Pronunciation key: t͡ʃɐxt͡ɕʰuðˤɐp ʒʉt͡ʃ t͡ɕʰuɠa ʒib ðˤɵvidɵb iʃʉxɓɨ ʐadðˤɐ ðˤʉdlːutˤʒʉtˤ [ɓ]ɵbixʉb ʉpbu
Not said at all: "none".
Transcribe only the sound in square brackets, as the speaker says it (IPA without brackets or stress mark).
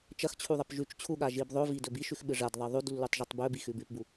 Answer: b